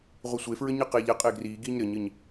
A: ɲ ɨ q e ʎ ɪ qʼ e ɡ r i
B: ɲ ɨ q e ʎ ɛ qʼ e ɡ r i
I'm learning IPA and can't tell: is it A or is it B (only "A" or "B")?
B